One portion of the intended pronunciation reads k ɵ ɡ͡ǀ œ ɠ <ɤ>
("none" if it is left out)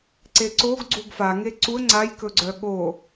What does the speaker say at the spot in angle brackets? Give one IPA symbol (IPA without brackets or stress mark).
o